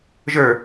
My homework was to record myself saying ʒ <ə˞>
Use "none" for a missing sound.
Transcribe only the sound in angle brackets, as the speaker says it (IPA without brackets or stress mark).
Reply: ə˞